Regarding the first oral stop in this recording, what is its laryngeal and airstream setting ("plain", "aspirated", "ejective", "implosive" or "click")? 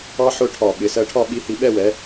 aspirated